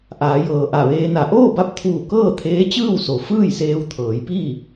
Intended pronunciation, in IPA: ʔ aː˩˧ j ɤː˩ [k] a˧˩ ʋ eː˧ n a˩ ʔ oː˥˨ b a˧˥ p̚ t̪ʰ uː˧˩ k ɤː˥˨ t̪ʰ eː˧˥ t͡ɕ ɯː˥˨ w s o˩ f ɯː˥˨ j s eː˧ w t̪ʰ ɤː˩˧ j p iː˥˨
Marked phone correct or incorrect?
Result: incorrect: ʔ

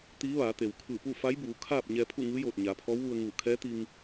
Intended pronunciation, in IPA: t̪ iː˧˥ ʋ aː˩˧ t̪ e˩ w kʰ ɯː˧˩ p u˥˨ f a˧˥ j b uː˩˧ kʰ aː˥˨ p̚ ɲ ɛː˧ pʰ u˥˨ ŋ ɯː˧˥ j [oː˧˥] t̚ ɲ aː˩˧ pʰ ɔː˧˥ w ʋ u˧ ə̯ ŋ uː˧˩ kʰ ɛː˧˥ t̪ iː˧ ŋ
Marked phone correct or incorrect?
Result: incorrect: oː˧˩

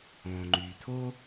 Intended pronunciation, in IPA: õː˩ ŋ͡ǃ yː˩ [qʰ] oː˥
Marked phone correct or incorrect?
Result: incorrect: t̪ʰ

